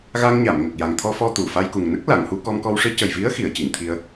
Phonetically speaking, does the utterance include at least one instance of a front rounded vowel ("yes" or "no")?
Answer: no